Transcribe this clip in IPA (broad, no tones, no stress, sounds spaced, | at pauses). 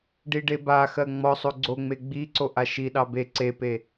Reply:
ɖ i ɖ e b a x ɜ ŋ͡m ɔ sˤ o ɡ͡ǀ o ŋ͡m e ɡ͡b i ǀ o ʔ a ʃ i ɗ ɑ b e ǀ e p e